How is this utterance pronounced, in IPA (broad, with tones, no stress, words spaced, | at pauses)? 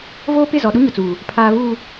voː˦pɪ˦˨ zɔ˨ɗu˦ɲʊ˨t͡suː˨ | pʰaː˨vuː˨